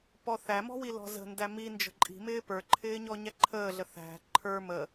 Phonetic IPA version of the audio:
p ɔ θ æ m ɔ̤ w i l ɔ̤ z ə̤ n d æ m i n d͡ʒ ə̤ ǃʼ i̤ m ɪː p ə˞ ǃʰ ɪː ɲ ɔ ɲ æ ǃʰ əː ɮ ə θ æ̤ ǃʰ ə˞ m ə

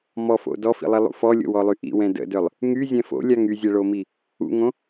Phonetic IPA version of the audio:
m ɔ f o̰ d ɔ f ḭ lˠ i lˠ ṵ f ɔ lʲ o̰ w ɔ lˠ y ʔ ḭ w ɛ̃ d ə̰ d œ lˠ | ŋ y zʲ ɛ̃ f o̰ lʲ a ŋ y zʲ ɛ ɭ o m i | ṵ ŋ õ

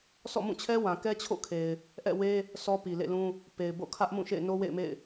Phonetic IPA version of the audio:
sʰ ɔ̰˦˨ m ũ˦˨ t͡ɕʰ ɛ˦ w ã˨ k ɛ˦ t͡ɕʰ o̰˦˨ kʰ e˨ ɪ̯ | ʔ ɛ̰˦˨ w e˦ | sʰ ɔ˦ p i˨ l ḛ˦˨ l ũ˦ | p e˨ ɪ̯ b o̰˦˨ kʰ ä˦ ʔ m ũ˦˨ ʃ ḛ˦˨ ɪ̯ n o˦ w ḛ˦˨ ɪ̯ m ḛ˦˨ ɪ̯

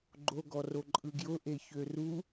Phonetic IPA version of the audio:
ɡ͡ǃ o ɡ ɔ r o ǃʼ ɯ ɡ j ʊ ʔ e ç ø r u

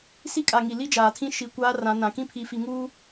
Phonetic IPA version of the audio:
s i˦ kʼ a˨ ŋ i˨ l i˦ d͡ʒ aː˨ tʰ ĩ˦ ʃ i˨ kʷ aː˦ r ã˨˦ n ã˨ k ĩ˦ pʰ i˨ f i˨ ŋ uː˦

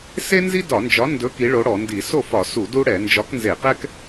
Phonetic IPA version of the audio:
s e˥ n z i˥ d ɒ˧˩˧ n d͡ʒ ɒ˨˥ n d ɵ˨˥ k i˨˥ ɭ o˨˥ ɽ ɔ˧˩˧ n d i˧˩˧ s o˥˩ f ɒ˧˩˧ s u˧˩˧ d u˥ ɽ ɛ˧˩˧ n d͡ʒ ɒ˨˥ k n z e˧˩˧ q ɛ˥ k

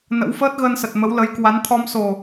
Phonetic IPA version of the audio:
n ə̰˧˥ w f əː˦˥ t̚ ɣ əː˧ n s ə˨˩ t̚ m ə˨˦ w l ə˨˦ j k w a˨˦ n t̪ʰ ɔ˧ m s o˨˩

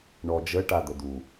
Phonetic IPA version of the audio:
ɳ ɔ d͡ʒ ə ʈ a d̪ ə d̪ u

